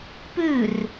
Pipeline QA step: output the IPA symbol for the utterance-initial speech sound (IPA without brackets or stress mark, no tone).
p